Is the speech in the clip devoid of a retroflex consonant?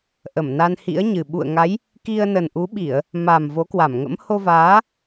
yes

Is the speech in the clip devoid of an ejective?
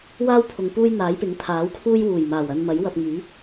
yes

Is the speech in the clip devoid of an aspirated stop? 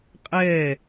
yes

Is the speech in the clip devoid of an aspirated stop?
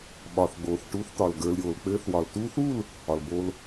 yes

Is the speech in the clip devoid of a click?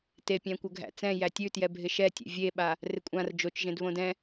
yes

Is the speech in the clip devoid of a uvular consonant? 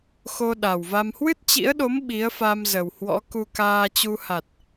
yes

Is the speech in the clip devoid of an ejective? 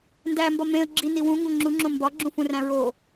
yes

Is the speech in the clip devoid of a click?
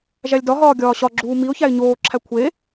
no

